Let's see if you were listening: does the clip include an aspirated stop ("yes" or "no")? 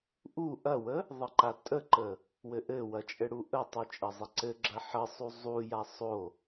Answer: no